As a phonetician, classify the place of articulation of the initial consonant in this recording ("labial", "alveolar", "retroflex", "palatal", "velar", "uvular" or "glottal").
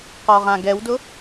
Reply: uvular